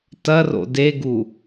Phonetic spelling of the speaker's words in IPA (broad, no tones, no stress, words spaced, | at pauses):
tɐro̰ deɡu